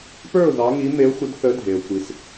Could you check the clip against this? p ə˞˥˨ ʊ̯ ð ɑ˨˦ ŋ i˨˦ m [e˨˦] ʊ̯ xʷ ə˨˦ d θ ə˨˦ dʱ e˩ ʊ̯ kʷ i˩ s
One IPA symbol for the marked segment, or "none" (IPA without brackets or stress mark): e˨˦